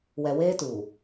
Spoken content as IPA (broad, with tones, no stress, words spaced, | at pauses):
wɛ˨weː˦tu˨